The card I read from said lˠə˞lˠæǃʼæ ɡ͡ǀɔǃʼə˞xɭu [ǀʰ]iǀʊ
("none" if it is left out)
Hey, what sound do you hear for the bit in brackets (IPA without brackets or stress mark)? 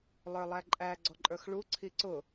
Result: ǀʰ